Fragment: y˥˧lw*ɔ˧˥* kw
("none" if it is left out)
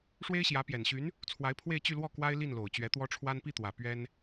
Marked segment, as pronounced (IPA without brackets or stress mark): ɔ˥˩